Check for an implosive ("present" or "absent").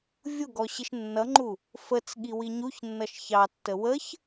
present